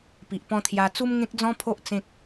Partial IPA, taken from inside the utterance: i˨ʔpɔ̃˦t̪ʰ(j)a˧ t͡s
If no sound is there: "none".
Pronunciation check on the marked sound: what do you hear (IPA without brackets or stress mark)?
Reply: j